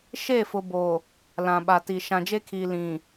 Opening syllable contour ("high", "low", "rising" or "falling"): falling